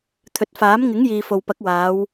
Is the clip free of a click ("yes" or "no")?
yes